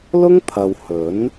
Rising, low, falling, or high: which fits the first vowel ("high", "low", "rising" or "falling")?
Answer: high